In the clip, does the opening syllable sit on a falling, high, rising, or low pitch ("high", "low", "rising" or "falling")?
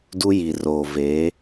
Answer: high